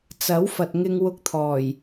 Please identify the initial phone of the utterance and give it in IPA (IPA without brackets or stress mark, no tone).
t͡s